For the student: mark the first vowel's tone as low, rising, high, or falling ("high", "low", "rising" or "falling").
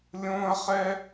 high